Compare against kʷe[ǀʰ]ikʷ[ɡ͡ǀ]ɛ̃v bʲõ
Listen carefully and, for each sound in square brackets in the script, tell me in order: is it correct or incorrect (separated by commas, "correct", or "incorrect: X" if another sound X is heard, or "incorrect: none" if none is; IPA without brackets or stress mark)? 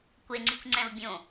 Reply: incorrect: ŋ͡ǀ, incorrect: ŋ͡ǀ